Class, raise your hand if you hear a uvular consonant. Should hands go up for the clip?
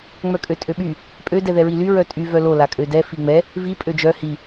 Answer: no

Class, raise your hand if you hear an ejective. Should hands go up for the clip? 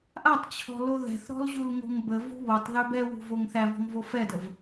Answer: no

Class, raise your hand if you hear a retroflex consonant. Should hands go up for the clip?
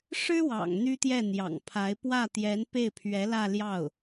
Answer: yes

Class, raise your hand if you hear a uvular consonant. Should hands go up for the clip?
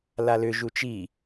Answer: no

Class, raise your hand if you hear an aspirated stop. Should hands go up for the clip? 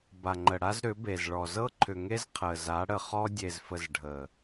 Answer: yes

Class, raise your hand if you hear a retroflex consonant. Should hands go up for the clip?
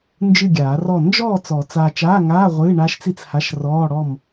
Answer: yes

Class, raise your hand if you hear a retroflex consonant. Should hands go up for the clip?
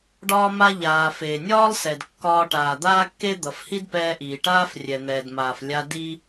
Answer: yes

